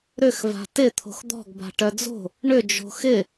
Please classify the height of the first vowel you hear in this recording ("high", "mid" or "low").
high